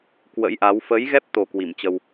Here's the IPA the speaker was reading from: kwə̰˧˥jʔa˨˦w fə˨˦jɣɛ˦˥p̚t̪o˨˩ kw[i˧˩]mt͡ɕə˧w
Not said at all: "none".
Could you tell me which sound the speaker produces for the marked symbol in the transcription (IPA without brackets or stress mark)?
i˧˩